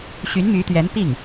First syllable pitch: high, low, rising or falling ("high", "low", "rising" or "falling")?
rising